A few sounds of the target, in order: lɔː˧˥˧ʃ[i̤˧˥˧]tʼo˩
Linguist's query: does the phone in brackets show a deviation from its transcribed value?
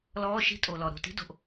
yes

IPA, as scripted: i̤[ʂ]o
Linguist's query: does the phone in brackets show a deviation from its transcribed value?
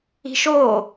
yes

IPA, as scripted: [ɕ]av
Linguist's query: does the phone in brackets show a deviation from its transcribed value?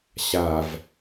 no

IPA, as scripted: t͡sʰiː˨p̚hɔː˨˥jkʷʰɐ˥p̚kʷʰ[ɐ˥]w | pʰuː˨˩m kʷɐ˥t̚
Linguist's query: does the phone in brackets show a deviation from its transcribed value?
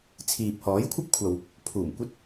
yes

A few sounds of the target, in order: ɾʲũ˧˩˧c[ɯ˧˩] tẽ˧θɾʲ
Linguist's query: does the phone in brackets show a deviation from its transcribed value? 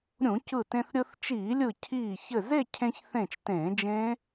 no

